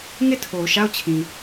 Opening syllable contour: falling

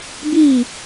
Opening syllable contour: falling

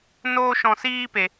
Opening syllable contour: high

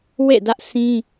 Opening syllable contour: falling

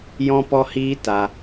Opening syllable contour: high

